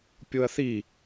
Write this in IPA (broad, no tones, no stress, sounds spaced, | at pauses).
pʲ o ɐ̯ θ i